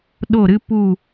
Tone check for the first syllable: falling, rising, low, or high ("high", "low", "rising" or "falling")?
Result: falling